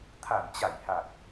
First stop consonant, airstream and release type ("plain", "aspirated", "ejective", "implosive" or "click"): aspirated